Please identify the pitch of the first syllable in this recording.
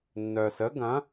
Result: low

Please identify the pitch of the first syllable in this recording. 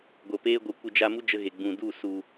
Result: low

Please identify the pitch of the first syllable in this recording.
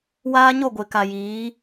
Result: high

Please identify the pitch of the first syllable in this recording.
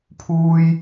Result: high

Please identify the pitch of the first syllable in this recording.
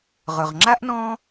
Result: low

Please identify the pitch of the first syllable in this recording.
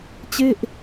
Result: falling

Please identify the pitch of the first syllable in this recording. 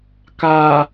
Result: low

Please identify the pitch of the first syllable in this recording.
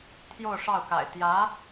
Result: falling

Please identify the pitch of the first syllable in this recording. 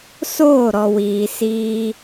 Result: falling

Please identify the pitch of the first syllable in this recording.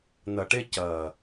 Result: low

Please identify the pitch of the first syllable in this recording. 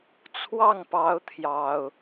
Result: falling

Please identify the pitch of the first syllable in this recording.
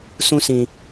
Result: high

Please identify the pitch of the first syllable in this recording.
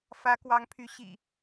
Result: rising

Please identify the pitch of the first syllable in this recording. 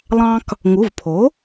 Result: high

